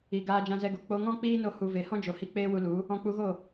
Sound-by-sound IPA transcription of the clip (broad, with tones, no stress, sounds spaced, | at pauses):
i˨ ɡ aː˧ d͡ʒ ã˧ z ɛ˧ ɡ o˨ k͡p o˧ ŋ ɔ̃˦ k͡p iː˦ n o˧ h u˨ v e˨ h ɔ̃˦ d͡ʒ o˨ h i˧ k͡p eː˦ w u˧ l u˨˦ | ɔ̃˧ k͡p u˧ ɣ o˦˨